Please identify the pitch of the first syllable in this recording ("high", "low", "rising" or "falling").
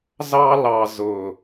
high